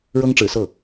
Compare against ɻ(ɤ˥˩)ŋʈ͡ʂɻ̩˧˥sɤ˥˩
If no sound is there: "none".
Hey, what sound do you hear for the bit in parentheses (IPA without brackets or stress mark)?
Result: ɤ˥